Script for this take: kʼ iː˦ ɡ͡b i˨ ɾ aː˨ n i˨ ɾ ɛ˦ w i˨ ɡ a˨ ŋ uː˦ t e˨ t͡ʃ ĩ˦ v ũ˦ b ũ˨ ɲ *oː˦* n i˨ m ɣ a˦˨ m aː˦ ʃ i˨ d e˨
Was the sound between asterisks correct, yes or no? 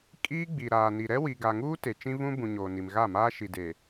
no